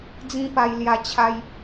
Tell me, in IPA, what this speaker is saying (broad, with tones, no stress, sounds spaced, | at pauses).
d͡z ĩ˦ p a˧ j l j a˧ t͡ɕʰ a˦ j